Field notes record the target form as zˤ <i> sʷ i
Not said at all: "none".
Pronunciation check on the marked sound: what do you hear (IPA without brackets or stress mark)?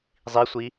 i